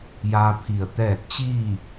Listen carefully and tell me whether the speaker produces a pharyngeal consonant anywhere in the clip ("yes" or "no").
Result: no